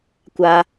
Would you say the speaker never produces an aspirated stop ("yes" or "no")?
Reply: yes